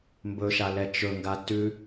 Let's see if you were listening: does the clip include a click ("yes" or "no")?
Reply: no